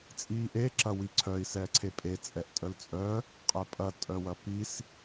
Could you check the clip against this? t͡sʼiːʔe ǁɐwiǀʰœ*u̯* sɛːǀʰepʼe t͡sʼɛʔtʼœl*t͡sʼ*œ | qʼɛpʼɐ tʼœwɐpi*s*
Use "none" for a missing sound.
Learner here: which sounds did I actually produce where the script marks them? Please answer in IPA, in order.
i̯, t͡sʼ, s

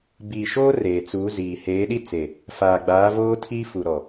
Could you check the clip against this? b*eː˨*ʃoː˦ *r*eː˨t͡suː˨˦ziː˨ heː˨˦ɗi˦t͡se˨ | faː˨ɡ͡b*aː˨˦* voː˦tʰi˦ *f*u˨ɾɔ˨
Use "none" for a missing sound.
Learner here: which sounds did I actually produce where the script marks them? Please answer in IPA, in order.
iː˨, r, aː˨˦, f

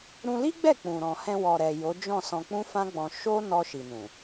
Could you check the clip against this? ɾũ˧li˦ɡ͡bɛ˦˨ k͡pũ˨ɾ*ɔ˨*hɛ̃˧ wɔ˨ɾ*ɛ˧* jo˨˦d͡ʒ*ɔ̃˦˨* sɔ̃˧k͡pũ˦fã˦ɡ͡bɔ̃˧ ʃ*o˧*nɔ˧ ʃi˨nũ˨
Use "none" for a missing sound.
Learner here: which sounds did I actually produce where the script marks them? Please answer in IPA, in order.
ɔ̃˨, ɛ˨, ɔ̃˦˨, o˦

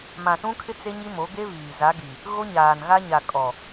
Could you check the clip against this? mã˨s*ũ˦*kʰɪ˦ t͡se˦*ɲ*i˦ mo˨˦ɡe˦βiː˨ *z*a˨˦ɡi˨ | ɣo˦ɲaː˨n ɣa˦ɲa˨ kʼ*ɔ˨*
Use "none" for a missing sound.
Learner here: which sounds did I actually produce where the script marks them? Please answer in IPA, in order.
ũ˦, ɲ, z, ɔ˨

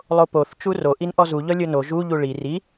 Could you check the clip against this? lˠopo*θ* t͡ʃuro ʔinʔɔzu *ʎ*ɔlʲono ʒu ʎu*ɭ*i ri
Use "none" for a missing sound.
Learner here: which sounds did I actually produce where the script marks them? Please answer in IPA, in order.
θ, ʎ, ɭ

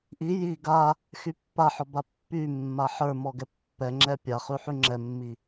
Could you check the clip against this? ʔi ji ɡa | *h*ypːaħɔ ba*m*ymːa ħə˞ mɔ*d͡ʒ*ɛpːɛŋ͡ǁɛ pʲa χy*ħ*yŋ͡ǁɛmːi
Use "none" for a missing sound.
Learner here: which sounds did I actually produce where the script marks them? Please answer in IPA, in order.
x, pː, ɡ, ħ

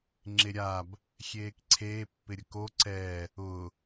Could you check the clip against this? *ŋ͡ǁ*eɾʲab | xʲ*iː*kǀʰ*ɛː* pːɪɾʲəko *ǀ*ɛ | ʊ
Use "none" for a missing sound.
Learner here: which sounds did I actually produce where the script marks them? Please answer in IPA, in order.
ŋ͡ǁ, eː, eː, ǀ

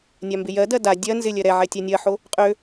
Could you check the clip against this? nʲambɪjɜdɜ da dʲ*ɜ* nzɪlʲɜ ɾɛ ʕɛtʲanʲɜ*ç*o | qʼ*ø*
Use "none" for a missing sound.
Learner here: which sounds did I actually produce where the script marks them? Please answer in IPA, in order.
ɜ, ħ, ø

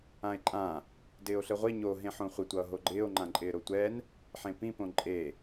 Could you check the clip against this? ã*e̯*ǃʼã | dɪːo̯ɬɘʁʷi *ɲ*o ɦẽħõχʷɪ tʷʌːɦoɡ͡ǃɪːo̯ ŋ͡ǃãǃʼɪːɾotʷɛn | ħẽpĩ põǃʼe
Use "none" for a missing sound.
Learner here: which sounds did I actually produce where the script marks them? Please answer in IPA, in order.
e̯, ɲ

